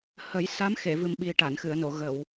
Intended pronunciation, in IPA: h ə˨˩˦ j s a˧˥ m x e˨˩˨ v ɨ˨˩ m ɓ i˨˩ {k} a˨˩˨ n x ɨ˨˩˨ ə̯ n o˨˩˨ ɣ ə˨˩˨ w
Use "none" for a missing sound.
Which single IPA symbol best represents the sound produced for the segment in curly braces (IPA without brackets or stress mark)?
ʈ